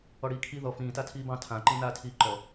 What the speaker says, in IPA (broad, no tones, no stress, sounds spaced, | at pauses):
ɔ ɽ iː kʰ i ð ɔ f ĩː t a tʰ iː b ɑ̃ tʰ ã ǃ ĩ n aː tʰ iː ǃ ɔ